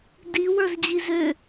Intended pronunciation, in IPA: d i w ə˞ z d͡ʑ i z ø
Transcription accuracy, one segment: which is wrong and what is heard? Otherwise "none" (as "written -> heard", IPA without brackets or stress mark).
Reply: none